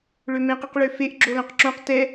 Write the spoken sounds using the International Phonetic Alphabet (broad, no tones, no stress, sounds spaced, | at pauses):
ɭ ø m ẽ q i q ɭ ø f e ʔ ɡ͡ǁ o l õ q ǁ õ q t ɛ